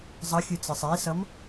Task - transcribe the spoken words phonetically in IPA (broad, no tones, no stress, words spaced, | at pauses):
zˤʌxʲɯ t͡sɯsˤisʌm